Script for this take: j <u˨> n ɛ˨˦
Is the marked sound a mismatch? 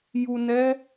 no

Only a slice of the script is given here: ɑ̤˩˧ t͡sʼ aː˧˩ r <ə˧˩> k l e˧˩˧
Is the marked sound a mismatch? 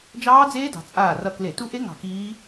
yes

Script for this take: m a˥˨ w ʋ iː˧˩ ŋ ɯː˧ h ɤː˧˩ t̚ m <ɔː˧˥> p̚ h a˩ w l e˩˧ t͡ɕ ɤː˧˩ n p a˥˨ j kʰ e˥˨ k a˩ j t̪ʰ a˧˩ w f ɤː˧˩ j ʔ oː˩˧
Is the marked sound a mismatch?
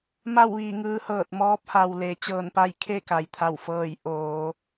no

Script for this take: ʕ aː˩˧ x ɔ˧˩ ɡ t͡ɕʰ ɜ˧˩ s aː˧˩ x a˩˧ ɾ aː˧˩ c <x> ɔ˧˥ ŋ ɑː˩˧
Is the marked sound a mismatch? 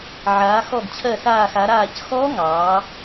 no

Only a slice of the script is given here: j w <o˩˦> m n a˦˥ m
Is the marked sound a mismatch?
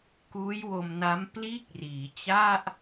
yes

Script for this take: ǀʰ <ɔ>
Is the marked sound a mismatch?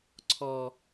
no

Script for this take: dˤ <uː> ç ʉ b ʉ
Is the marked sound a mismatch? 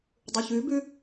yes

